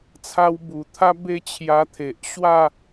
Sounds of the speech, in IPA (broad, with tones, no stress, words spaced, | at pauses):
t͡sʰa˧wbu˨˩t̪ʰa˦ be˥˧t͡ɕʰja˧t̪ʰe˨ʔ ɕwa˥˧